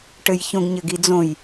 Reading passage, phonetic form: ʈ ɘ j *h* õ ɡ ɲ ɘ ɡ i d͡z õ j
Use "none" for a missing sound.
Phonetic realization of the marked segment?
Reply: ç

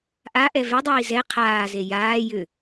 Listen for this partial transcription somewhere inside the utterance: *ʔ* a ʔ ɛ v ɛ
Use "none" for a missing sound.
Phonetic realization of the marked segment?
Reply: ʔ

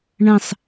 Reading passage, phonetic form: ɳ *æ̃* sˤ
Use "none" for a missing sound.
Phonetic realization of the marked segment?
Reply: ɐ̃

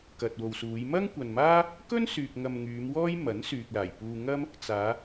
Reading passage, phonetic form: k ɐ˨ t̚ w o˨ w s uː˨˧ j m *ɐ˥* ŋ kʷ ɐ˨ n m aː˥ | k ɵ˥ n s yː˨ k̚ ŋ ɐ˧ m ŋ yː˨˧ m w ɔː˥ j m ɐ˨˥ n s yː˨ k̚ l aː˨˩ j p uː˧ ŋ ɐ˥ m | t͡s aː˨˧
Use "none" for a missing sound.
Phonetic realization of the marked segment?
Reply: ɐ˥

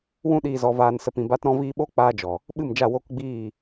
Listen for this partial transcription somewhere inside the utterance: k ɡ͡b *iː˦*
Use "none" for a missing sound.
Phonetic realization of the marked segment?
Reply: iː˦˨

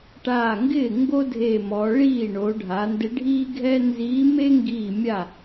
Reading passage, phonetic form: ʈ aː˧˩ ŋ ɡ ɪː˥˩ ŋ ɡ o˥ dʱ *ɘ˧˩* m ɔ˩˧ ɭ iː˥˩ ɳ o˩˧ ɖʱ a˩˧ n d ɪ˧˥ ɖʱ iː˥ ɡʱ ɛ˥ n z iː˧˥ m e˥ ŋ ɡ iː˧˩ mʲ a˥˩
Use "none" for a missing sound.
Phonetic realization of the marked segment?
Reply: e˧˩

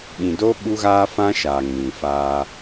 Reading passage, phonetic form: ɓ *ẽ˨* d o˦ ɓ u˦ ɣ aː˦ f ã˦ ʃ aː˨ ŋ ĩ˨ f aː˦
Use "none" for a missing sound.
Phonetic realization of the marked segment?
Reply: ĩ˨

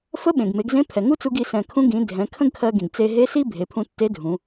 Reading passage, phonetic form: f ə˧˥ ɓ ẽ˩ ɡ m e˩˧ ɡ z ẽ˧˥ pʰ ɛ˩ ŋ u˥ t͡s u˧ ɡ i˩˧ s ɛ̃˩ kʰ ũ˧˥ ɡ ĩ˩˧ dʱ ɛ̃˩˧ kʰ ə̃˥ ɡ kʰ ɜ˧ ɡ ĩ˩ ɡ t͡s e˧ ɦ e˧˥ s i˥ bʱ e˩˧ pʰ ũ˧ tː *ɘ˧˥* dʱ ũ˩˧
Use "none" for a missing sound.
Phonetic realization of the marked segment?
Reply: e˧˥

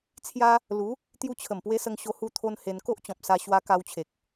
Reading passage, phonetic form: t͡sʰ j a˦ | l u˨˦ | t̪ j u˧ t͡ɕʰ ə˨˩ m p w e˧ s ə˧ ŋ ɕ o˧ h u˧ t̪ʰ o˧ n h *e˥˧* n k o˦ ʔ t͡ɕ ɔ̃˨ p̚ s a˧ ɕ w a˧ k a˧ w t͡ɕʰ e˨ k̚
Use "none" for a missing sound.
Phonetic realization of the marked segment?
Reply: e˧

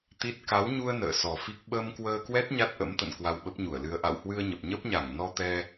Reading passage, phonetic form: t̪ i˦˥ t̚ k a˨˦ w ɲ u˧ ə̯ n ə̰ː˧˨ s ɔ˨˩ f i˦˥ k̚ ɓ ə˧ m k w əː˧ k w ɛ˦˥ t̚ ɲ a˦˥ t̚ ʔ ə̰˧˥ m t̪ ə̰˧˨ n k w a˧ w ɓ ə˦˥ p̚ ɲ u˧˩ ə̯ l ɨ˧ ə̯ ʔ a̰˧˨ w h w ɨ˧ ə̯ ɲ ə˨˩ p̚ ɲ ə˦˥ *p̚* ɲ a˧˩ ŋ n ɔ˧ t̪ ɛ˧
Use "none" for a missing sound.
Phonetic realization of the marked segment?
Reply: p̚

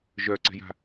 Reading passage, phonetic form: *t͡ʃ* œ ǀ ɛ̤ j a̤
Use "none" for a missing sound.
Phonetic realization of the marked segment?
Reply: ʒ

